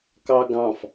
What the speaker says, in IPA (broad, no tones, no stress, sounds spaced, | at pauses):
k ɑ ɡ ɑ̃ f